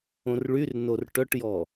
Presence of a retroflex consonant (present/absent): present